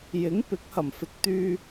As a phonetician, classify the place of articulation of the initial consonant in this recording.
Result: palatal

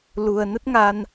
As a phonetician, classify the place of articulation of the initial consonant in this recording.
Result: alveolar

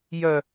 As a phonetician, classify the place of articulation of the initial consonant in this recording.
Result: palatal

